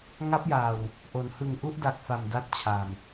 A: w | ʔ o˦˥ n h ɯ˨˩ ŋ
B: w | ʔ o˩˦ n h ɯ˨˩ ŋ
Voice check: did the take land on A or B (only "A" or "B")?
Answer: B